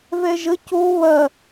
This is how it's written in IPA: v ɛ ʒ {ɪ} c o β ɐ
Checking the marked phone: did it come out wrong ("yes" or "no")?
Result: yes